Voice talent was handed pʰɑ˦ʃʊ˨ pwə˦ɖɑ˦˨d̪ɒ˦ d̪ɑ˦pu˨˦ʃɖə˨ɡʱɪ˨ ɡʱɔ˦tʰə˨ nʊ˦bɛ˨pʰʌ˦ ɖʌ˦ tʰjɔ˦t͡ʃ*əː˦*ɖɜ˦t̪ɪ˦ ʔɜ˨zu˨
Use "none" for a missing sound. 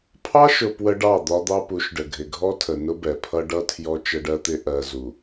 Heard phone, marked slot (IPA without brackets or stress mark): ə˦